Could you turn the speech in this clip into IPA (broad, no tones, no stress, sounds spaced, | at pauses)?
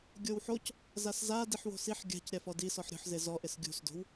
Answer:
ɡʲ o w ħ o c | z a s z a d i ħ w o̤ s i ħ ɡʲ a̤ c ɾʲ a f ɔ d i s ɔ ħ ɾʲ o̤ ħ z e z ɔ ʔ ɪ s ɡʲ ṳ s d o̤ w